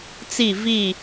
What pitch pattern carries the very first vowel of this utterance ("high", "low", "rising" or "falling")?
falling